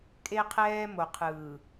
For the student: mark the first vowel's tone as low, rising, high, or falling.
high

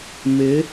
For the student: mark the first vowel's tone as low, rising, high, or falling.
rising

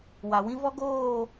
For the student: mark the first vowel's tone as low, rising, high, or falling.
low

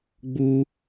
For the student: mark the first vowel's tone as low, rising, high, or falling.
high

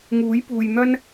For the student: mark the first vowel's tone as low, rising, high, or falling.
rising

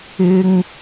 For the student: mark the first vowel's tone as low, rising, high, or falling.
high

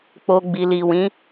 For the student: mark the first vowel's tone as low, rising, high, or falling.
high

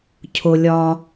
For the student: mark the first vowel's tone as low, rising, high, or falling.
low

